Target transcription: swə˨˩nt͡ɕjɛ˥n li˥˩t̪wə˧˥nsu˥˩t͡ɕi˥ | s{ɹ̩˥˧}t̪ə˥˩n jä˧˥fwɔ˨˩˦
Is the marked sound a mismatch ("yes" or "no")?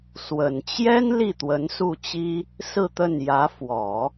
no